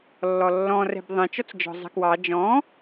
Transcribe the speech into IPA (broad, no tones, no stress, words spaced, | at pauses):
lːɔlːɔ̃rɛ̤b ðˤɛ̃ t͡ʃɔt͡sd͡ʒɔ̤zˤɛ̤kwɑ d͡ʒɔ̃